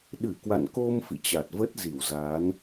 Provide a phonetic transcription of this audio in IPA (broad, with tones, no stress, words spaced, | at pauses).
ɗɨ˧˩kwa̰˧˨nko˧m fḭ˧˨t͡ɕa˨˩t̚və˦˥t̚ zi˧˩wza˨˦n